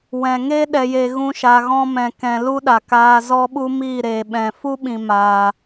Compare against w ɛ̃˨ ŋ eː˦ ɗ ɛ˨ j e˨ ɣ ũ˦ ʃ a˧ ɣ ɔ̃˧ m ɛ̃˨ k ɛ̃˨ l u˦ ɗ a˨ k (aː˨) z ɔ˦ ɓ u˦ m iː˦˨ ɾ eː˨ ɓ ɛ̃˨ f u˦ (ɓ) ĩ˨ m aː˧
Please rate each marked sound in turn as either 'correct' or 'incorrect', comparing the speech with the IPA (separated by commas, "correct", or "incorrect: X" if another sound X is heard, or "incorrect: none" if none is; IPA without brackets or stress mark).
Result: incorrect: aː˧, correct